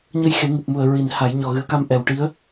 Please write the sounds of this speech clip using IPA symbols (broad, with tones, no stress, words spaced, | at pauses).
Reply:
ɲə˧jxe˨˩˦ ŋɨ˨˩p̚mu˨˩ə̯ ɹi˨˩˨n ha˨˩˦j ɲɔ˨˩ɣɨ˨˩˦ə̯ka˧m ʔɛ˨˩wʈi˧˥ə̯